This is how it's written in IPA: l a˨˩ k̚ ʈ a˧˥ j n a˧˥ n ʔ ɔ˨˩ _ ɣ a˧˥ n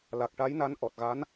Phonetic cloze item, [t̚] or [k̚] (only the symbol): t̚